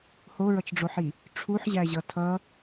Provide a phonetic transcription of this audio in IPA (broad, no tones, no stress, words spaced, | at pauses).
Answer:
hoɹʌt͡ʃɖ͡ʐoħi | ʈ͡ʂʰuħʑæʑʌ tʰʌ